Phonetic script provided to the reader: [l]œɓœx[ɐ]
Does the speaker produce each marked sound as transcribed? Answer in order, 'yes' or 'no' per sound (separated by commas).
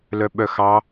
yes, no